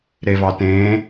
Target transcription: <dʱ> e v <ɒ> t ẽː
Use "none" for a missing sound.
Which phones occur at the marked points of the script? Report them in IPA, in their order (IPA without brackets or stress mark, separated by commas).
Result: ɾ, ɑ